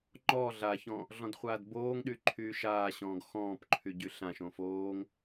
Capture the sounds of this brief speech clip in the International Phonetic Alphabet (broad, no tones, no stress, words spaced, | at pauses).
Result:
ŋ͡ǃɔ ɮaçɔ̃ | ɮɔ̃dχʷaːdboːŋɗy ǃʰyːʃaːɕɔ̃ːɡ xɔ̃ːpǃʰy ɟyɬãʃõ foːŋ